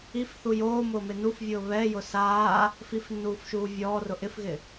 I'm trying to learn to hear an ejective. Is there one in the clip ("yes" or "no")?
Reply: no